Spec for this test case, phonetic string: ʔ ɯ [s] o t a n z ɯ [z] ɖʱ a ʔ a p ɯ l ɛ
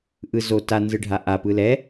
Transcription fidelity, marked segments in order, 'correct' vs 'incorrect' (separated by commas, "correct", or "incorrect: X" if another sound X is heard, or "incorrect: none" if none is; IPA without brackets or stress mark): incorrect: z, incorrect: none